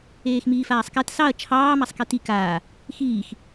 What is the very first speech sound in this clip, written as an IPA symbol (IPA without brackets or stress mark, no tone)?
eː